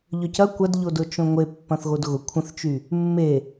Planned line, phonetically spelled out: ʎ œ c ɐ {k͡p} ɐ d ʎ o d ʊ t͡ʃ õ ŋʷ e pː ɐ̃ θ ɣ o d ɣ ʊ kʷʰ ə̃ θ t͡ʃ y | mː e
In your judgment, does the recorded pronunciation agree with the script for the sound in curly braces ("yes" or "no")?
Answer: no